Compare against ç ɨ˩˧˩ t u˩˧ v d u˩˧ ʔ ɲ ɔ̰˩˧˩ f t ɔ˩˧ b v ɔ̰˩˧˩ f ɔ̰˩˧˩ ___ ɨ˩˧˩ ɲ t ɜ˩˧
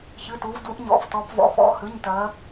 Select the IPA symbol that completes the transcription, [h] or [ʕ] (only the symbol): h